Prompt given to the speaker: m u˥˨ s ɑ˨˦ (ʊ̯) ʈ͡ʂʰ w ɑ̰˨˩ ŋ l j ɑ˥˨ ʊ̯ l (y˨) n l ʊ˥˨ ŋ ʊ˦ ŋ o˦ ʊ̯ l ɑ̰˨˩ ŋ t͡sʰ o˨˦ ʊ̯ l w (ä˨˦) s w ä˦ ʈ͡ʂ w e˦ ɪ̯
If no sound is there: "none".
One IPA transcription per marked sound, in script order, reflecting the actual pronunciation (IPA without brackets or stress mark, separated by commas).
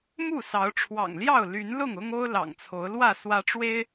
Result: ʊ̯, y˨˦, ä˥˨